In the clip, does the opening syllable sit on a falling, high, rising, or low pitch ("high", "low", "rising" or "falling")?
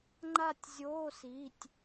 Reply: falling